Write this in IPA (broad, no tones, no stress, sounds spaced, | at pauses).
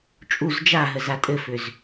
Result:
t͡ʃʼ u z d͡ʒ a ɦ ə z a tʼ ɘ f ʏ z